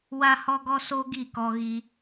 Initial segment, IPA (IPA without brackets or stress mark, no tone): w